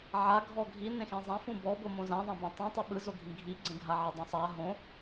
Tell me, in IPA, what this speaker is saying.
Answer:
ʕ a ɡʱ ɔ ɡʱ i n ẽ x ẽ zˤ ã f ũ b ɔ b o m õ z ã ðˤ ã b ẽ tˤ ĩ tˤ ɯ ɓ ɯ z o ɡʱ ĩ ɡʱ i ɡ͡ǀ ẽ ɡʱ a ʕ e dˤ õ sˤ a ɦ õ

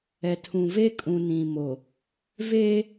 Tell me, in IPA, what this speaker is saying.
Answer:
ɛ˨ tʰ ũ˨ v e˦ kʼ ũ˨ n ĩ˨ m o˨ | v eː˦

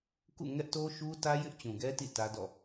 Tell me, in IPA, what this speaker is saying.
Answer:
k ṵ˦˨ ŋ ɛ˦ ʔ t o˦ ʃ u˦ t ä˦ j ɪ˦ ʔ t͡ɕ ũ˨ ɡ ɛ˦ t ḭ˦˨ t ä˦ d ɔ̰˦˨

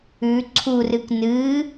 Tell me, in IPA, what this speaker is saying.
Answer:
ʉ ǀʰ u r ɨ k n ɨ

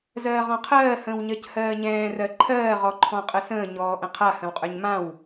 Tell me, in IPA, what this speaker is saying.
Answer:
z ɜː ʁ ɔ̃ qʰ ɜː h ə̃ː w ɲ ɜ c h ɜː ɲ ɛ̃ː r ɜ ǃʰ ɜː ʁ ɔ ǃʰ ɔ̃ qʼ ə s ə̃ː ɲ ɔː ʔ ə̃ qʰ a h ə̃ w qʼ ə˞ ɲ m ã w

